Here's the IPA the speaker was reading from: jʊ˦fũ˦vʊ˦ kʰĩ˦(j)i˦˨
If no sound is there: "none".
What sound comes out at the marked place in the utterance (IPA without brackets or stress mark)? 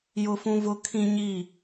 ɲ